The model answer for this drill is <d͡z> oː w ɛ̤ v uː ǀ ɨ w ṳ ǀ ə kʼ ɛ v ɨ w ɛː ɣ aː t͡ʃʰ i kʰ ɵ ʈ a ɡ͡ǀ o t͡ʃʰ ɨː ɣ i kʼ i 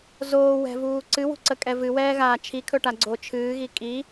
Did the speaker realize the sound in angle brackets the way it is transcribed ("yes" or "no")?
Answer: no